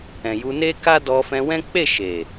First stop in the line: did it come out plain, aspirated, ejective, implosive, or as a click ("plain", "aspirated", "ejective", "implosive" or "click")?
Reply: plain